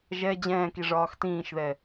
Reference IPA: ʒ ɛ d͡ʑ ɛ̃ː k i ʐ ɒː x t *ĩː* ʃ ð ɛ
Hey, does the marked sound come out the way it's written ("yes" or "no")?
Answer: yes